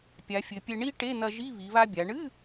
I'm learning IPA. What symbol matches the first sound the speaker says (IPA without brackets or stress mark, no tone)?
pʲ